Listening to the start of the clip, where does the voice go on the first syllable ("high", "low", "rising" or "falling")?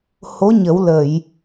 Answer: rising